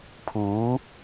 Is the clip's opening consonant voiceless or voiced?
voiceless